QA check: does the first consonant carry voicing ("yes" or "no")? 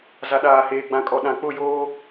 yes